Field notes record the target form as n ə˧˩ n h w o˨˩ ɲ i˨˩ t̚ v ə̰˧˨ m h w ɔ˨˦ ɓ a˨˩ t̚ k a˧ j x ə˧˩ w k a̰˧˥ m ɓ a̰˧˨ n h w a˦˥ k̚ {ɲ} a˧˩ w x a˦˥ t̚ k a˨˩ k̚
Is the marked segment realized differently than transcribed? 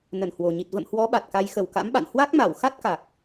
yes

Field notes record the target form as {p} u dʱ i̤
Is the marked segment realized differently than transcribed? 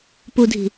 no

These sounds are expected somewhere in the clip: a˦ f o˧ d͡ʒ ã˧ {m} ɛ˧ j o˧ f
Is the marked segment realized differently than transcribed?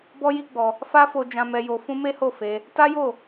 no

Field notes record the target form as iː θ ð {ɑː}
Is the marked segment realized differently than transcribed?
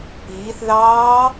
no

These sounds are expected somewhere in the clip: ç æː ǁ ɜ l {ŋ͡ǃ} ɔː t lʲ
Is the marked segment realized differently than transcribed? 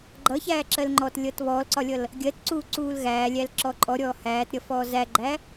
no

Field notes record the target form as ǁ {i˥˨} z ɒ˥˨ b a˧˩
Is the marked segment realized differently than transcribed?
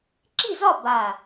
no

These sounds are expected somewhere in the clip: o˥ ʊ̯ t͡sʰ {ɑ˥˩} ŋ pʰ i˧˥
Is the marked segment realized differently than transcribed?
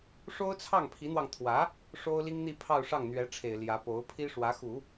no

